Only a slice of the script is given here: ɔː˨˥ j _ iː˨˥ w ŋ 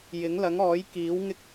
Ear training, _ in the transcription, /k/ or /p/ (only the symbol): k